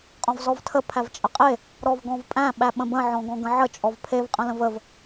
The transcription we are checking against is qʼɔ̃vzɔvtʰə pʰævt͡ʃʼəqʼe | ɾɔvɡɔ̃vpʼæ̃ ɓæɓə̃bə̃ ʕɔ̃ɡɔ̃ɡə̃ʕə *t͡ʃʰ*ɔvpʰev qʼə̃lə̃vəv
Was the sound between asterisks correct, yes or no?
no